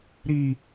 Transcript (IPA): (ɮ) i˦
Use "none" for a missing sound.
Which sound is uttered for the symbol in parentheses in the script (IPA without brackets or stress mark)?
ɾ